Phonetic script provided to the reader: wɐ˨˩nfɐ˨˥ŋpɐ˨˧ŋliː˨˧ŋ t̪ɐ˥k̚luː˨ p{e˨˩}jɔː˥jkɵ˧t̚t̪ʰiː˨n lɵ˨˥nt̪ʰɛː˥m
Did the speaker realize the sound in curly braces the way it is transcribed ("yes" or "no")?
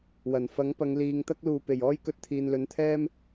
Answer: yes